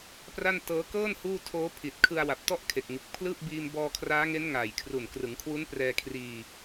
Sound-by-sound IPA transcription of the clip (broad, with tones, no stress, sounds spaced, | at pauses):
p r a˥˩ n t ɤː˦˥ k ɤː˥˩ n h uː˥˩ tʰ oː˦˥ pʰ i˨˩ t̚ kʰ ɯ˧ a̯ w a˨˩ p̚ t ɔ˥˩ ʔ kʰ e˨˩ k̚ ŋ ɯ˨˩ k̚ pʰ l ɯː˥˩ p̚ b iː˧ m b ɔː˧ kʰ r aː˦˥ ŋ e˦˥ n ŋ aː˨˩ j kʰ r u˨˩ n k r ɯ˩˦ ŋ kʰ w u˦˥ n p r ɛː˧ kʰ r iː˧